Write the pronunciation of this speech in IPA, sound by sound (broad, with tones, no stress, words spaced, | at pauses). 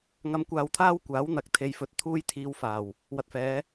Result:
ŋɐ˧mkʷaː˧wt̪ʰaː˥w kʷaː˨˥wn̪ɐ˨˥k̚t̪ʰe˨jfɵ˨˥t̚ t̪ʰuː˥jt̪ʰiː˧wfaː˨˩w | wɐ˨t̚fɛː˨˧